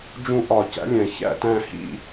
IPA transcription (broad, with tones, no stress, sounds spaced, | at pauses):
d͡ʒ ũ˦˨ ʔ ɒ˧˩˧ c æ̰˨˥ lʲ æ̃˩ ç æ̰˦˨ t æ̃˦˨ h ḭ˦˨